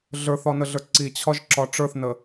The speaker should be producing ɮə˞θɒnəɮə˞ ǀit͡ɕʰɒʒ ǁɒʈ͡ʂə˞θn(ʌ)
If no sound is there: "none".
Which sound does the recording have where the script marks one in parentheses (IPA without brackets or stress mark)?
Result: ə